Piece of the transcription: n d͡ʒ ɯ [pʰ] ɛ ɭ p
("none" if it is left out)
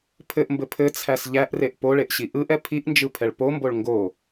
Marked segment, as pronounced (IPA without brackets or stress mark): pʰ